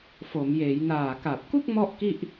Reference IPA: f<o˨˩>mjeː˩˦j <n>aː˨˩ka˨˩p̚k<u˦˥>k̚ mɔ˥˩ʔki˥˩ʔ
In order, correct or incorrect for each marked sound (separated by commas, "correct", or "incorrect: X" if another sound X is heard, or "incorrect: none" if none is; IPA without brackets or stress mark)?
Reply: incorrect: o˩˦, correct, incorrect: u˥˩